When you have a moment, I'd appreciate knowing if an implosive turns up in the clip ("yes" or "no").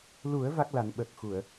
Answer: yes